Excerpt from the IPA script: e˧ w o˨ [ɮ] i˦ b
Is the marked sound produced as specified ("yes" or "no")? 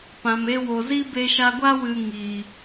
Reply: no